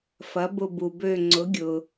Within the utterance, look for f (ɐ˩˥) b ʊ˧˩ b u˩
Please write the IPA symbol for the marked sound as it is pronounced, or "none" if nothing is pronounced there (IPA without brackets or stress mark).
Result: ɐ˩˥